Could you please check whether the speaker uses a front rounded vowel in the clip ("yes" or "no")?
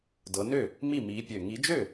yes